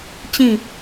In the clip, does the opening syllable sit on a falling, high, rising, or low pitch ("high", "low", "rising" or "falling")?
falling